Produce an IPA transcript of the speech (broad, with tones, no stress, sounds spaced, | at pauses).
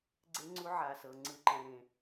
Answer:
ɡ͡ǀ e˦˥ ŋ͡ǀ u˦˥ ʕ a˩˧˩ s ɤ˩˧˩ ŋ͡ǀ ɯ˧˩˧ ǃ ɛ̃˩˧˩ ɾ ẽ˧˩˧